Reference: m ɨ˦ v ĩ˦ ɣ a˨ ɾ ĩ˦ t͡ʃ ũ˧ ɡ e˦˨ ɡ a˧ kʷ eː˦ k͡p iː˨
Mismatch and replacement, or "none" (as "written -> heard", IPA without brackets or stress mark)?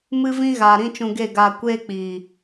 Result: none